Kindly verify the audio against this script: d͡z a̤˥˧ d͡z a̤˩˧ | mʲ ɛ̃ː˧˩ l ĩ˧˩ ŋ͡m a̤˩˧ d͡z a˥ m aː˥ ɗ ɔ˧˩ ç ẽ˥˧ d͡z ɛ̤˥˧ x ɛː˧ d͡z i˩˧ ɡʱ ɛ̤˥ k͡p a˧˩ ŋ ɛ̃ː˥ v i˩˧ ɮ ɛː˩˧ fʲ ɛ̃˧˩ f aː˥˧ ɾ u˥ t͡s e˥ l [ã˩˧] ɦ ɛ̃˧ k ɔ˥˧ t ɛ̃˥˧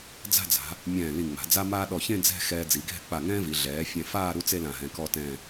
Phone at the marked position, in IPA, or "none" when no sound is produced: ã˧˩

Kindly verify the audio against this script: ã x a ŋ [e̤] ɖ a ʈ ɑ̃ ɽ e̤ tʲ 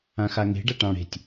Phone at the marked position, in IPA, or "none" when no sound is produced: e̤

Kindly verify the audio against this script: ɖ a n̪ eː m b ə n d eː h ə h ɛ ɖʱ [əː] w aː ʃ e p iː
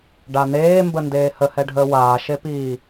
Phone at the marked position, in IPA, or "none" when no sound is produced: əː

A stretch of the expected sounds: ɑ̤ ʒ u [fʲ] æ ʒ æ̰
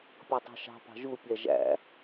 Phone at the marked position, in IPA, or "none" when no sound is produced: pʲ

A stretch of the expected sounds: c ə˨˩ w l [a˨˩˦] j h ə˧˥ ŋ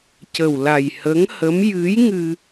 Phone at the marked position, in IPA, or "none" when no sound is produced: a˨˩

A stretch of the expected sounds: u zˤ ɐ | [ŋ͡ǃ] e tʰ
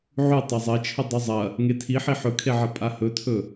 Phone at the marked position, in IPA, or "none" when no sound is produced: ŋ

